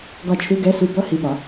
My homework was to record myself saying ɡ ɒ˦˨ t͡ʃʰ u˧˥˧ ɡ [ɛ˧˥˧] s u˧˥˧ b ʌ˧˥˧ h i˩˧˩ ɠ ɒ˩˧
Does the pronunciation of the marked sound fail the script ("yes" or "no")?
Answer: no